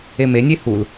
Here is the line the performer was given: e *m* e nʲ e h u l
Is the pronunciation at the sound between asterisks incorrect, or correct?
correct